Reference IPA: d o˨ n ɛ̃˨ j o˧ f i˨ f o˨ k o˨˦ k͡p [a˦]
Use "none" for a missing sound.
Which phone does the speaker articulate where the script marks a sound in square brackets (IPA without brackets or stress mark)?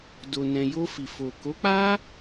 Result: a˦